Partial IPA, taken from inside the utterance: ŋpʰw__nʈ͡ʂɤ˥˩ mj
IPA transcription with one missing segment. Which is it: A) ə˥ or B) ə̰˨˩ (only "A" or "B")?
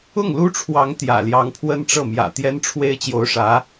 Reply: A